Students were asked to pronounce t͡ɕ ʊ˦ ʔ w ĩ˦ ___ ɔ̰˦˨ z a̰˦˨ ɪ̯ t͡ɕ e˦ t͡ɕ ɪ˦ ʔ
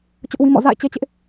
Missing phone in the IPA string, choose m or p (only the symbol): m